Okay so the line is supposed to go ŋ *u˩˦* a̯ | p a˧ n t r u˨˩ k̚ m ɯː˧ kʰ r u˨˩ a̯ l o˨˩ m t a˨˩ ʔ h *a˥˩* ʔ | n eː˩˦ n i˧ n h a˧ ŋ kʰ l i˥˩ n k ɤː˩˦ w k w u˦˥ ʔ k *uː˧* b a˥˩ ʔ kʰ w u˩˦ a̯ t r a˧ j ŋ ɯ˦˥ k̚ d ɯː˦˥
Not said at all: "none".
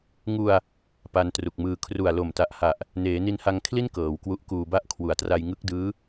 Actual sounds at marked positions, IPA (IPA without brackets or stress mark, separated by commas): u˧, a˨˩, uː˧